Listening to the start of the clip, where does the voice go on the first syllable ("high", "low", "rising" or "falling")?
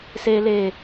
high